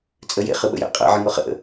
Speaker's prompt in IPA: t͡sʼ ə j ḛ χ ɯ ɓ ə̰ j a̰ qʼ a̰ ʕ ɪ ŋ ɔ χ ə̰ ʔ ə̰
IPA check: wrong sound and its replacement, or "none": none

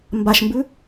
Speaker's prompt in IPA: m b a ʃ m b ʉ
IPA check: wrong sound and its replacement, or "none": none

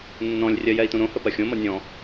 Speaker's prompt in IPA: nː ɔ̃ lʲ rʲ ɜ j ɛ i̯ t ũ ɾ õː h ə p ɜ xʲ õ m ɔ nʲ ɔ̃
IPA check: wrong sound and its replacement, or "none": õː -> õ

